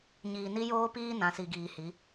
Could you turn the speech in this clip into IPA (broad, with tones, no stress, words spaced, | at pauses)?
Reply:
ɲiː˨ni˦joː˦piː˦ nã˨si˨ɡiː˨hi˨˦